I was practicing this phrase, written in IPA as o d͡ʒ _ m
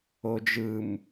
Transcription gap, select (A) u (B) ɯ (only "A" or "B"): B